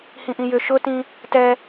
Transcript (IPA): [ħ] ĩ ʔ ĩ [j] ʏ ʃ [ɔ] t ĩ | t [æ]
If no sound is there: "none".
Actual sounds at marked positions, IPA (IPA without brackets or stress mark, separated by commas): h, j, ʊ, ɛ